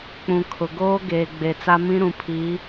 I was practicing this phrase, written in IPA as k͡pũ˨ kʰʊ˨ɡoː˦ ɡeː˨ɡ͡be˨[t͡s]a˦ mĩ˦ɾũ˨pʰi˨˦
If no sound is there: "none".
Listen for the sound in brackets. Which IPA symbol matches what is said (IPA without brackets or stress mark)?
t͡s